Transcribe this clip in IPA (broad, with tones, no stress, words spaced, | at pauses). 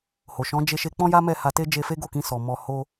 ho˨ ʃɔ̃˨˦d͡ʒe˧ʃe˧ k͡pɔ̃˦ja˦mɛ˦˨ ha˧te˦ d͡ʒe˧fe˦ɡo˦˨kĩ˧ sɔ˨mɔ˧ ho˦